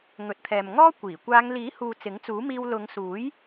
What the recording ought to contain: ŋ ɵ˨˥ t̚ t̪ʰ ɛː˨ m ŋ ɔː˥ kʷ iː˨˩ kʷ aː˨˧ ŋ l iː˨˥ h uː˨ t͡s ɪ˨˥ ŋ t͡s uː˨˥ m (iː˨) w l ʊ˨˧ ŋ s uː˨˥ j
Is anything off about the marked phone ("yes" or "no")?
yes